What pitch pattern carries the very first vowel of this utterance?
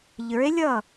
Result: rising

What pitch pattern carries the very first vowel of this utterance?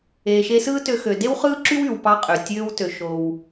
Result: low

